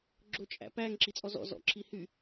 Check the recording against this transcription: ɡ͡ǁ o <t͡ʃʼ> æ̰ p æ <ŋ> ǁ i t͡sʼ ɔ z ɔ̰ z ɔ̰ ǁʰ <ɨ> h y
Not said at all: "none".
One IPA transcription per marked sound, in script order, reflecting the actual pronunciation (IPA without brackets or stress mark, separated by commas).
t͡ʃʼ, ŋ, i